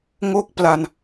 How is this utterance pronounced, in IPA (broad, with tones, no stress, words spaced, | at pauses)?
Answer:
ŋo˥˩k̚pla˧n